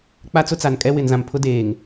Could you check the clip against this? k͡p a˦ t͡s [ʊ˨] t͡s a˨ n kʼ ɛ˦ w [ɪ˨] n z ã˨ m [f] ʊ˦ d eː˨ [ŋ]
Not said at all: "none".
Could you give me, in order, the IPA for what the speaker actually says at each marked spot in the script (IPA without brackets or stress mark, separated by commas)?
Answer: ʊ˦, ɪ˨, pʰ, ŋ